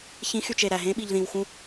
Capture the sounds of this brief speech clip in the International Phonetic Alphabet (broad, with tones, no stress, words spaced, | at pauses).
çĩ˨˦xy˨t͡ʃ e˨ɾæ˨ɦẽ˦ ɓi˨ʎðĩ˨w xũ˦